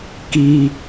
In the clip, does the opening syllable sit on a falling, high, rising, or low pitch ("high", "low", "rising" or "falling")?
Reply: high